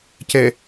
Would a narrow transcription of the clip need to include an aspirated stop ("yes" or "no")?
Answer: no